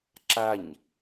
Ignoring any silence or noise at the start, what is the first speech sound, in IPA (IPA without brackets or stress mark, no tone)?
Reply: ǁ